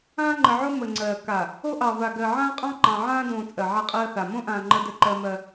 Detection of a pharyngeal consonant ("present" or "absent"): present